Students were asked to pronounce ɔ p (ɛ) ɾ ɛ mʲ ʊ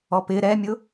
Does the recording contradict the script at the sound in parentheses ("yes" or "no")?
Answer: yes